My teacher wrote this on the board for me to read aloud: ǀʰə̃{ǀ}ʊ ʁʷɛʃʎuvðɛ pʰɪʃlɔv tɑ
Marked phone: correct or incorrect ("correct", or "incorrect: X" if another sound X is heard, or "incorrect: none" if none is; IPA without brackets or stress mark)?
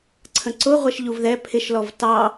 correct